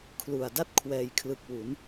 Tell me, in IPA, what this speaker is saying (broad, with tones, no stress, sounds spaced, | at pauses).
kʰ l u˨˩ a̯ d a˥˩ t̚ kʰ w ɛː˨˩ j kʰ l ɯ˨˩ k̚ w u˩˦ n